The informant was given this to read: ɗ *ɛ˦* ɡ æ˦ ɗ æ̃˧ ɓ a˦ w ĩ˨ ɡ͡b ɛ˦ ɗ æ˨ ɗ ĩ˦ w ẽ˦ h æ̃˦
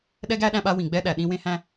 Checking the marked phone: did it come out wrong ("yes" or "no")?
no